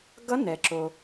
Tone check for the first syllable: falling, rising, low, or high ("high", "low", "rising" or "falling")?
rising